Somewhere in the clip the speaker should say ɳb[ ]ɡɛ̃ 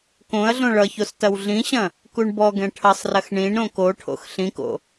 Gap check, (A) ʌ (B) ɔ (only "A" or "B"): B